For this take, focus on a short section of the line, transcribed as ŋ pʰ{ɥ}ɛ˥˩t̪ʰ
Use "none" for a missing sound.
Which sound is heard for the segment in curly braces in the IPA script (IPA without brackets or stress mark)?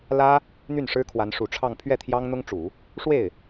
ɥ